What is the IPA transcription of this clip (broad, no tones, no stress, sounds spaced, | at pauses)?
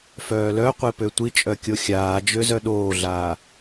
f œː l œ qʷ e p ø tʷ i t͡ʃʼ œ kʲ o xʲ aː d͡ʒ ø z œ ɗ oː ɮ aː